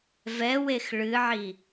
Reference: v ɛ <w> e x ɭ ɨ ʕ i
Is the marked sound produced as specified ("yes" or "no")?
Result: yes